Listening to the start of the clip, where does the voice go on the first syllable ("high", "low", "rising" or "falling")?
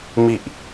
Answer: low